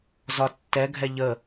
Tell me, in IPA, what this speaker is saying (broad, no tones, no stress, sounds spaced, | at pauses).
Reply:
z ɒ tː ɛ ɡʱ ɛ ʎ ə